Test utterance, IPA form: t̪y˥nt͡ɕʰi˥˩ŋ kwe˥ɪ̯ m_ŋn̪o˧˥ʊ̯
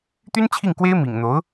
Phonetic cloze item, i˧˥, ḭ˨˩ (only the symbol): ḭ˨˩